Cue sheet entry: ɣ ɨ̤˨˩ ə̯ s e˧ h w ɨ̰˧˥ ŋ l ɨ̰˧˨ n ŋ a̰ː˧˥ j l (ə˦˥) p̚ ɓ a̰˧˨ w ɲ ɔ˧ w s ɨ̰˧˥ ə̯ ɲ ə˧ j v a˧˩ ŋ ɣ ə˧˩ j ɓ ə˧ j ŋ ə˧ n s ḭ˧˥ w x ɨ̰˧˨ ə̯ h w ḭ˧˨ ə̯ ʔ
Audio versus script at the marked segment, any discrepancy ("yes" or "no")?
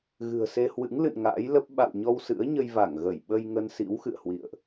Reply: no